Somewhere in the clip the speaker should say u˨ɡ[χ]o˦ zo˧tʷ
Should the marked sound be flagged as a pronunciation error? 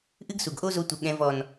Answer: yes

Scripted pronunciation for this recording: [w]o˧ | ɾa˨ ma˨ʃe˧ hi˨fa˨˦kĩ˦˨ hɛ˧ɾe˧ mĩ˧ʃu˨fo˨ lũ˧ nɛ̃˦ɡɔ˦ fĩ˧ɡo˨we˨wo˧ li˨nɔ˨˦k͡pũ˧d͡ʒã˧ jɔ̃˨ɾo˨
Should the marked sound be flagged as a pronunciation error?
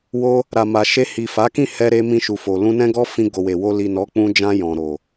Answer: no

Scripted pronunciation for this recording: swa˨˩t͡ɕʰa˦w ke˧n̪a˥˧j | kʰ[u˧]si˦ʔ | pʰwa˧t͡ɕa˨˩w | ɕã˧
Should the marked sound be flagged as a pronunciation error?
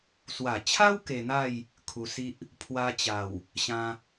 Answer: no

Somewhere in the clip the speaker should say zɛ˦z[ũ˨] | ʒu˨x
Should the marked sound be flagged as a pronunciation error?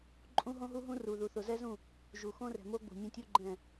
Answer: yes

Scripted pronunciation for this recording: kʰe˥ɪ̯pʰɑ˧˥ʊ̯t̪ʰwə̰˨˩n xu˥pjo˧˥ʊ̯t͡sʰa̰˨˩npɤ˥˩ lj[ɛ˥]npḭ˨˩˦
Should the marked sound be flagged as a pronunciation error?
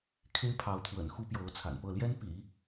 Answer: no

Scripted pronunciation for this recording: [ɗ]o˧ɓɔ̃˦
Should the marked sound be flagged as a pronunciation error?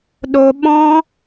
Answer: no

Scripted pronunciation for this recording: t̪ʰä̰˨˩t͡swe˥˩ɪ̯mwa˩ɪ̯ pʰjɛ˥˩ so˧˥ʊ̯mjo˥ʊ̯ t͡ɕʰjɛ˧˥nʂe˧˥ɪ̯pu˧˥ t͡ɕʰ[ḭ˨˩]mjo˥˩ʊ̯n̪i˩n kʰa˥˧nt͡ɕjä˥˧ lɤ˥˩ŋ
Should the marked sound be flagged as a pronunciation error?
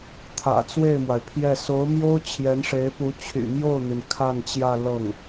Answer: yes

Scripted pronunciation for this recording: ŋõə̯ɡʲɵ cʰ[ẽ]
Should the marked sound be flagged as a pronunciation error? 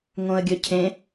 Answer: no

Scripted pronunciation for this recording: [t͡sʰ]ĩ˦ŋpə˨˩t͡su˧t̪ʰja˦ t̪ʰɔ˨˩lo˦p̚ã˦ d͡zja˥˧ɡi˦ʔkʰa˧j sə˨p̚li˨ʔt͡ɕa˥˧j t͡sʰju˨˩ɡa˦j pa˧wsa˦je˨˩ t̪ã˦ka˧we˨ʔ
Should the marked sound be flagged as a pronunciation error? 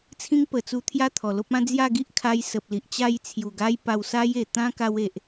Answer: no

